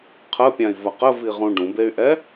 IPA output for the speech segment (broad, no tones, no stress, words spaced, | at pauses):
qʰəpʲãi̯vɐ qəviʁũ ɖũbey̯ʔɛ